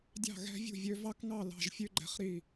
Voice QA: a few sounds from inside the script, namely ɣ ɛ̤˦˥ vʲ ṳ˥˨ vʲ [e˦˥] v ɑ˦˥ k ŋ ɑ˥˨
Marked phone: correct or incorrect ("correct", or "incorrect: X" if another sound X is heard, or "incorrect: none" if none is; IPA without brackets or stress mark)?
incorrect: ø˦˥